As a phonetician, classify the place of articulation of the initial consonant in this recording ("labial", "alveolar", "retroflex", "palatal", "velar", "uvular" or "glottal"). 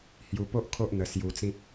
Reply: glottal